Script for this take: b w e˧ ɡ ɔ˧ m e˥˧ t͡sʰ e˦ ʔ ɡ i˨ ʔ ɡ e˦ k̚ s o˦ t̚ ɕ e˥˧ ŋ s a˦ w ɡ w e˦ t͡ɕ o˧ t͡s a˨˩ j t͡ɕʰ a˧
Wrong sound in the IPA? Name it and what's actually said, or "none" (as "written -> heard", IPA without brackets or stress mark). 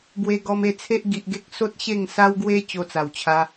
j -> w